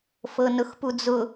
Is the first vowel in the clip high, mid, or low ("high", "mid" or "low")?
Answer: mid